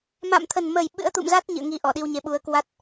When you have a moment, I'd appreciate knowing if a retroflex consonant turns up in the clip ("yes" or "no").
no